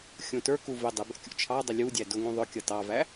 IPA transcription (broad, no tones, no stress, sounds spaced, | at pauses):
xʲ ũ t ə˞ k u v ɪ dˤ ɪ b ɛ̰ kʲ ṵ t͡ʃʰ ɑ dˤ ɪ lʲ u dʲ æ d ʊ ŋ ũ ðˤ ʊ kʲ ʌ t ɑ v æ